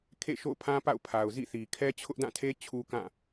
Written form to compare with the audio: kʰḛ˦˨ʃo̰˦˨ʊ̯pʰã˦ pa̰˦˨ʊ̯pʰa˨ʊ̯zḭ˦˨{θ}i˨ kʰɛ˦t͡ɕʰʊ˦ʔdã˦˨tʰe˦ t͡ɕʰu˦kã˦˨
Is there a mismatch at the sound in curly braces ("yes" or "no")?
no